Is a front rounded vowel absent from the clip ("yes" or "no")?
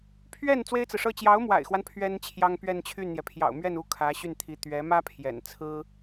no